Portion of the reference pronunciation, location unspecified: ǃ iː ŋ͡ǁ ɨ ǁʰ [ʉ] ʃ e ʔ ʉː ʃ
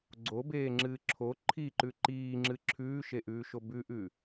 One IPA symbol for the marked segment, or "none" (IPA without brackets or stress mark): ʉː